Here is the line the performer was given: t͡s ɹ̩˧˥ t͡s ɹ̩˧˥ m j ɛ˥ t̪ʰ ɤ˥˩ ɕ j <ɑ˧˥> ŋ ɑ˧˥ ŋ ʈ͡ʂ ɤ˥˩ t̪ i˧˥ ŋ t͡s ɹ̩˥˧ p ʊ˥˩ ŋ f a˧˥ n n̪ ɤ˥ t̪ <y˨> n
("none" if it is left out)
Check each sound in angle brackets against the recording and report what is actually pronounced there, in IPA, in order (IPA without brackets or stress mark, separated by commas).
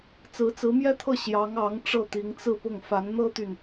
ɑ˧˥, y˨